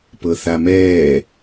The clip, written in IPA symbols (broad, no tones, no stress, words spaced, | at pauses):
pɤθamɛː